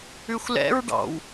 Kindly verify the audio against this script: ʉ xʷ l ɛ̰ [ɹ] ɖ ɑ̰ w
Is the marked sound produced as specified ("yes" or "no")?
yes